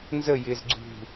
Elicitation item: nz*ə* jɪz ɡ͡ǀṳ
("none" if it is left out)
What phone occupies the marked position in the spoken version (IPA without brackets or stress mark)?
ə